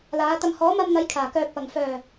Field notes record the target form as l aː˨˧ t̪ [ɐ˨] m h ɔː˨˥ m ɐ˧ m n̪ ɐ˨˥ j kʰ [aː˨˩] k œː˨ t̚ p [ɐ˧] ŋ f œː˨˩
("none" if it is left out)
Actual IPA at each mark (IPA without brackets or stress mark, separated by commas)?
ɐ˨, aː˨˩, ɐ˨˩